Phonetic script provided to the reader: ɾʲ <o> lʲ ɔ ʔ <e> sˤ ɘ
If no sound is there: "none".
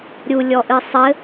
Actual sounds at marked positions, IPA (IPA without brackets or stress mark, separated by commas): u, ɨ